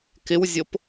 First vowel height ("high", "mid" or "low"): high